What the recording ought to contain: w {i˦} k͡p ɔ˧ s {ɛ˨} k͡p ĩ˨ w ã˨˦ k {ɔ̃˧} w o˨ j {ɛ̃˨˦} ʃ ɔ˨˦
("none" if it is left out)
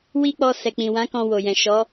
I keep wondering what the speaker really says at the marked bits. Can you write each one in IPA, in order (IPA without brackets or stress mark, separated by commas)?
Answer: i˦, ɛ˨, ɔ̃˧, ɛ̃˨